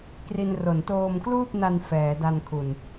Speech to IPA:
k r i˧ n r o˩˦ n t oː˧ m k l uː˥˩ p̚ n a˧ n f ɛː˩˦ d a˧ n kʰ u˨˩ n

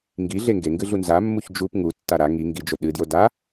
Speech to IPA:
ŋ ɡ i ɮ e ŋ ɡ e ŋ ɡ ɨ ɮ u n z a mː u ç d͡ʒ u p ŋ u tː a ɾ a ŋ i ŋ ɡ i d͡ʒ o ɗ ɨ d j o d a

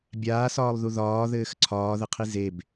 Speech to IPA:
bʲ aː s ɒː lˠ ð u ð ɒː ð ɘː x ǀʰ ɒː ð ɘ qʰ i z e b

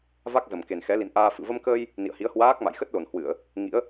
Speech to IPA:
v a˦˥ k̚ z ə˨˩ m k e˨˩ n x ɛ˨˦ l ḭ˧˨ n ʔ aː˧ f ɨ̰˧˨ v ə˧ m k əː˧ j | n ḭ˧˨ ə̯ h i˨˦ ə̯ h w aː˦˥ k̚ m a̰˧˨ j x ə˦˥ t̚ l o˨˩ n h w ɨ˧˩˨ ə̯ | ŋ ḭ˧˥ ə̯

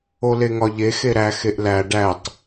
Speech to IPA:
o l e ŋ ɒ ʎ e x e ɾ æ x e ʔ l æ ɖ æ tˤ

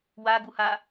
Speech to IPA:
w a ɡ u h a

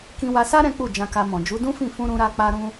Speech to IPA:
k ĩ˧ w a˧ s a˦ ɾ ɛ̃˦ k͡p u˦˨ d͡ʒ ã˧ k a˧ m ɔ̃˨ d͡ʒ u˨˦ d ũ˦ f ĩ˦˨ f ũ˧ ɾ ũ˧ ɾ a˧ k͡p a˧ ɾ ũ˧

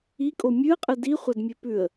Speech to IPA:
i kʼ o mʲ ʉ ə̯ qʼ ɨ d i χʷ ɐ d mʲ e p ʉ ə̯

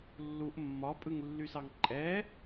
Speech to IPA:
lː u ʔ mː ɒ pʼ ɯ ŋ lː y s ɑ ŋ ǃʼ ɛ

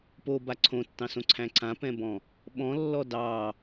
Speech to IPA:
p o b a ǀʰ õ tː ɑ̃ s õ ǀʰ æ̃ ǀ ã p ɛ̃ b ɔ̃ | ɓ ɔ̃ lː ɔ d ɑ

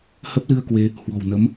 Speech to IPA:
h ə˦˥ p̚ l ɨ˧ ə̯ k w e˧ | h w ɔ̤˨˩ w n ə˨˦ m

